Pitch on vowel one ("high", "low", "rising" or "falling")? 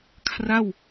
falling